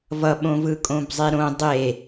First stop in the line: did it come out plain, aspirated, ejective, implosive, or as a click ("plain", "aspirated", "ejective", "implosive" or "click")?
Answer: implosive